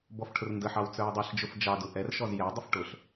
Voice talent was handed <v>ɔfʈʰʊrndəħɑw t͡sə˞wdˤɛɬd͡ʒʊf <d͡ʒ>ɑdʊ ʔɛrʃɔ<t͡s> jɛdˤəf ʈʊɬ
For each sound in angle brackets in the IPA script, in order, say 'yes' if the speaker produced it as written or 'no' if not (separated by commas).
no, yes, no